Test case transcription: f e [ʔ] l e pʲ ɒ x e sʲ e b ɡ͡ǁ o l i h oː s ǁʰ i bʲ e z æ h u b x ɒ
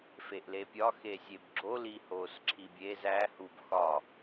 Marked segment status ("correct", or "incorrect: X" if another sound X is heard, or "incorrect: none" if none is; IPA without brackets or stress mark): correct